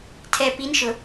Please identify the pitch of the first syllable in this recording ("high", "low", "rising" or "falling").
low